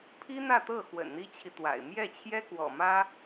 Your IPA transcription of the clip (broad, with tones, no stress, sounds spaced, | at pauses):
pʰ i˥ n̪ ä˥˧ t̪ ɤ˥˩ x w ə̰˨˩ n n̪ i˥ t͡ɕʰ i˨ t̪ w a̰˨˩ ɪ̯ m j ɛ˥˩ t͡ɕʰ j ɛ˥ k w ɔ̰˨˩ m ä˥